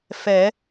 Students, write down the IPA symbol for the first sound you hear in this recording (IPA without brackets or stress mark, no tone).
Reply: f